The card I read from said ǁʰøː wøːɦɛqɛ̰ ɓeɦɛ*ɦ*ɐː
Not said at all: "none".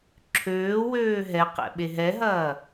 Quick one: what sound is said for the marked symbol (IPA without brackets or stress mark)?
ɦ